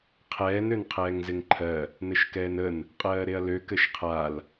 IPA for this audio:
qʰ ɛː n ø n qʰ ɛː ŋ z ɪ ŋ ǃʰ ɜ | n ɘ ʃ k ɛː n ə n | qʼ ɜː ɾ e ɐ̯ l ø k ɘ ʃ qʰ a l

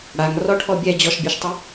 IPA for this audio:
ɽ a ŋ r ɔ ʈʰ ɔ bʲ ɛ d͡ʑ ɔ ʃ bʲ ɤ ʃ tˤ o

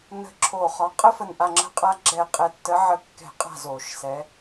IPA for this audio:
n ə̤˨˦ ǁʰ o˧˩ χ ɒ˨˦ qʼ ə˦ f ə˧˩ n ʔ a˧˩ ŋ͡ǁ ə̤˨˦ qʼ a˨˦ ɡ͡ǁ ɛ˧˩ qʼ ɛ˧˩ tː ə˨˦ ʕ ə˧˩ kː ɛ̤˧˩˧ qʼ a̤˧˩ z o˧˩˧ ʃ s ɛ˨˦

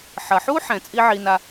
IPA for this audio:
ħ ɐ˨ ħ u˦ ħ ɛ̃˨ t͡sʼ i˦ ʕ i˧ n a˧

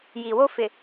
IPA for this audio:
j iː˨ w o˦ f ɪ˨

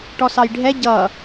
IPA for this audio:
ʈ ɔ s ɑ j ɖʱ ɛ ɟ ʌ

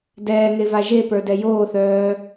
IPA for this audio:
d ɛː ŋ e v a ʒ e p ə˞ d ɛ j oː θ œː

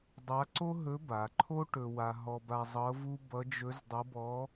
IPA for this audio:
dˤ a˧˥ ǀ o˥ ɦ ɵ˧˥ b a˩˧ ǃʰ o˥ ʈ ɵ˧ w a˧ ɦ ɔ˧ b a˧ zˤ ɤ˧˥ v u˥ b ʌ˧˥ d͡ʒ ɵ˧˥ z dˤ ʌ˧˥ b ɔ˧˥

